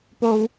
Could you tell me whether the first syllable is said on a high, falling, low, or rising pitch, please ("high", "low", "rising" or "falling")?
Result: high